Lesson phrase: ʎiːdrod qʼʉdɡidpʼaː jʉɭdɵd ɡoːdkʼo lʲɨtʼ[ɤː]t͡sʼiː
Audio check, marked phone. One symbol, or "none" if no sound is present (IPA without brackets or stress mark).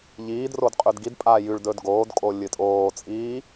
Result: oː